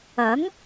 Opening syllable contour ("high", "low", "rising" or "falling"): rising